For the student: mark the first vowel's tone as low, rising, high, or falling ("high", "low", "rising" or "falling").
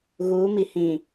rising